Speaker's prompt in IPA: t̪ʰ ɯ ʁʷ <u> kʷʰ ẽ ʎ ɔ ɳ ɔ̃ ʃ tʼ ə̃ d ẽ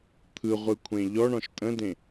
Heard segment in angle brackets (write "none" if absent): ɯ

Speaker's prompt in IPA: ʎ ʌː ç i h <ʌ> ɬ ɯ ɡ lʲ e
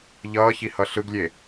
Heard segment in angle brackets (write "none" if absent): ʌ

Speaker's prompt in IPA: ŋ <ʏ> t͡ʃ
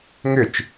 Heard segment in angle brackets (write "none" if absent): ʏ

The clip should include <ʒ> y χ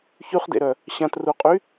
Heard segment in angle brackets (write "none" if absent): ç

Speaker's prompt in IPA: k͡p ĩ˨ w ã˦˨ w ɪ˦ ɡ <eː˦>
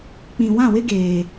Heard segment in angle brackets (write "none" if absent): eː˨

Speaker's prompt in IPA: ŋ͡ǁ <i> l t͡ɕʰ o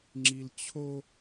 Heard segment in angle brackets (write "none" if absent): i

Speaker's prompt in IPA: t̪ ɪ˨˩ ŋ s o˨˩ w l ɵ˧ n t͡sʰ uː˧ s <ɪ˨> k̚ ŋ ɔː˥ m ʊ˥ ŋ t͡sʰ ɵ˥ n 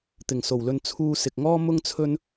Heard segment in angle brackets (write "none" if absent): ɪ˨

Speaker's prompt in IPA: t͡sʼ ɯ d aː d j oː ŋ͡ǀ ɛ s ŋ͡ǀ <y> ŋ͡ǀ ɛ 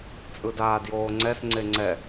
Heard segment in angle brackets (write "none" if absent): e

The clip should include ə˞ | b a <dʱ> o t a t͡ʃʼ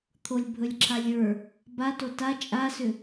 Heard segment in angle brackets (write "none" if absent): t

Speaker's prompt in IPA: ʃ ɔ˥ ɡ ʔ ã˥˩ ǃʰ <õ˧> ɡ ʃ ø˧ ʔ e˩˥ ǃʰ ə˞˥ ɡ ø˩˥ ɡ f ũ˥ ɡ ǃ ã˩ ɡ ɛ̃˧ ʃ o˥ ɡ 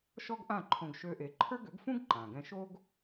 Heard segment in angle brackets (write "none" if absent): õ˧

